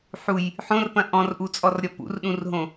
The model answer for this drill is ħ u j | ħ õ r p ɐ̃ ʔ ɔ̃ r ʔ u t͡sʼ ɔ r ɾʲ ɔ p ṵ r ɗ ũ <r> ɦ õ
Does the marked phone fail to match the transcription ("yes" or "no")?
no